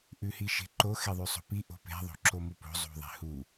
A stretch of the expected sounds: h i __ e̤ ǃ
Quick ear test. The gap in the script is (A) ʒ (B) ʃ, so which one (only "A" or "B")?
B